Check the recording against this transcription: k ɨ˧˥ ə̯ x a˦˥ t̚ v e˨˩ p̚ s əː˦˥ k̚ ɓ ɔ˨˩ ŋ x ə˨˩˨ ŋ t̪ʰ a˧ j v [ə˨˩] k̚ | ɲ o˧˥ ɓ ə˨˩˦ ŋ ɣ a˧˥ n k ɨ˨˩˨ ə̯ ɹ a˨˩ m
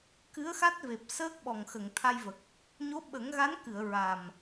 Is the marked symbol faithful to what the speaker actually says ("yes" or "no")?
yes